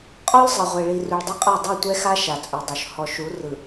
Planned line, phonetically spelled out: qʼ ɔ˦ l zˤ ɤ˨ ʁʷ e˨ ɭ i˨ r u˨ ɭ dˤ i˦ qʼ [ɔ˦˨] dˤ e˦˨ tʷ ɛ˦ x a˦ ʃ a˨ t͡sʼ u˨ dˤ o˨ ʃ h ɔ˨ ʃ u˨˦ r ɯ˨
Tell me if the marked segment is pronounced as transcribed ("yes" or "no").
yes